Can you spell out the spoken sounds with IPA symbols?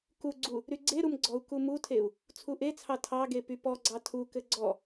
k u ɡ͡ǀ u | ɾ y ɡ͡ǀ e ɾ u m ɡ͡ǀ ɔ u̯ k u m u tʰ e u̯ | t͡sʰ u ʔ e t͡sʰ ɑ tʰ ɑ ɡ e p y p ɔ ɡ͡ǀ ɑ tʰ u k ɘ ɡ͡ǀ ɔ

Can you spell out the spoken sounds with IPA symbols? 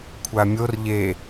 kʷʰ a mʲ o r ʎ e

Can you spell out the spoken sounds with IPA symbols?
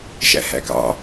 ʃ æ̰ h æ̰ k ɑ̰

